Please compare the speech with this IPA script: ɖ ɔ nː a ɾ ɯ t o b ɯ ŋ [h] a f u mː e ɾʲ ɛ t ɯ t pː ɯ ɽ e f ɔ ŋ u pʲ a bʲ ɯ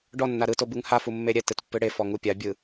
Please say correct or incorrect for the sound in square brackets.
correct